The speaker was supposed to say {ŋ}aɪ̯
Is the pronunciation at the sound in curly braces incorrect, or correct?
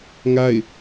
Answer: correct